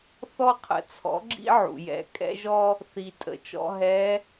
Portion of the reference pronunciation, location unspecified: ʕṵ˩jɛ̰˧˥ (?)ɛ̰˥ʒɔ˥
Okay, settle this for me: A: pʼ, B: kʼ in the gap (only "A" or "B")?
B